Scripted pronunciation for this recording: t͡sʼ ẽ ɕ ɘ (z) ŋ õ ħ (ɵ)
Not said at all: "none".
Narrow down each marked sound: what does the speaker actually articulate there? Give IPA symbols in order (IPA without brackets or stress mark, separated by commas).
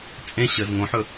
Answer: z, ɵ